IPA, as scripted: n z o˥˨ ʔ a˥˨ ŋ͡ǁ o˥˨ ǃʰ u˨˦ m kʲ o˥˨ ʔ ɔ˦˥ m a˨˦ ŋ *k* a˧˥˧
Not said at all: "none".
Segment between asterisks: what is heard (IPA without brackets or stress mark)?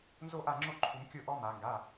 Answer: ɡ